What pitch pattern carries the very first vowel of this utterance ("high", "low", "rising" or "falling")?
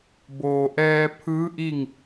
low